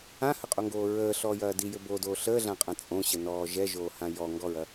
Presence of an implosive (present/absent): absent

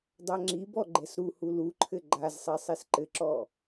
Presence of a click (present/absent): present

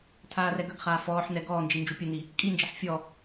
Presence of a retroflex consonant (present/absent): absent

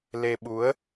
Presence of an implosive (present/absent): present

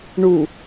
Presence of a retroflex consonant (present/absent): present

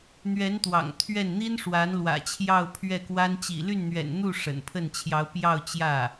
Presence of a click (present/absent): absent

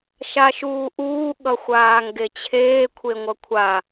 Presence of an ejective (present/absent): absent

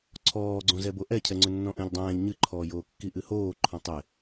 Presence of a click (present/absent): present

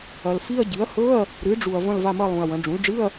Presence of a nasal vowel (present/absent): present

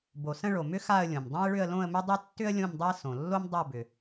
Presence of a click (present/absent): absent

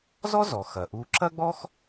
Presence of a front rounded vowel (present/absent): absent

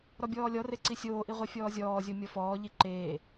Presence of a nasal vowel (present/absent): absent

